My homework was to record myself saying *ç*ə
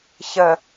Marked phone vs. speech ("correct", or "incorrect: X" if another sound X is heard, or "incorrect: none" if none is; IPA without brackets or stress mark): correct